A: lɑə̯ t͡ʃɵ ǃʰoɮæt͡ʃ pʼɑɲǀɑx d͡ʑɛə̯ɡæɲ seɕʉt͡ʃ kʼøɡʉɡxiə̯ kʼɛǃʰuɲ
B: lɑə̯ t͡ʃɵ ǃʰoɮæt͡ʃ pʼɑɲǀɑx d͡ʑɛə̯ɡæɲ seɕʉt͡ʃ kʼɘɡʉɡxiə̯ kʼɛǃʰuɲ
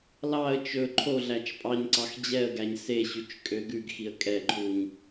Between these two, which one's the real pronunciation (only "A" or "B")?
A